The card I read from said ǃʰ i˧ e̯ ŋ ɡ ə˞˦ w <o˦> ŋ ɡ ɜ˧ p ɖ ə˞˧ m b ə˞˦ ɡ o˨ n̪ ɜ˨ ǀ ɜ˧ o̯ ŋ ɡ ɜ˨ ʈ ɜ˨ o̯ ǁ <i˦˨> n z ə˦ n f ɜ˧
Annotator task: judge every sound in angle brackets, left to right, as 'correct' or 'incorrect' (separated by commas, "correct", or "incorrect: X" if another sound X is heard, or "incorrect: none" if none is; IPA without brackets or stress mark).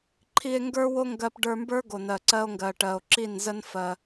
correct, correct